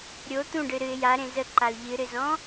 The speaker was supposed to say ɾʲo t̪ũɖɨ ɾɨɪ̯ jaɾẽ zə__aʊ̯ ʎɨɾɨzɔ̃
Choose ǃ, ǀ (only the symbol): ǃ